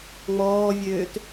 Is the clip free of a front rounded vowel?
no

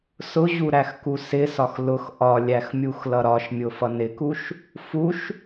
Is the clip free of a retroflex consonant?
yes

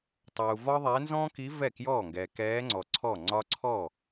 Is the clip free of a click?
no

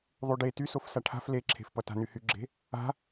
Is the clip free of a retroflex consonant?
no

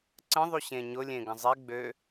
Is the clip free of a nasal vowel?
no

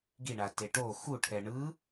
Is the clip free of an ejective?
yes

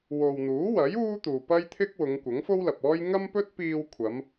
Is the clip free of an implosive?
yes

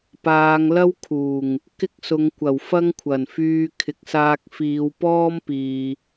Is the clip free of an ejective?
yes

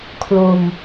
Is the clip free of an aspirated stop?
no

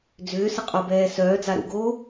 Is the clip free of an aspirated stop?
yes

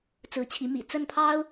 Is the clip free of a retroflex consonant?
yes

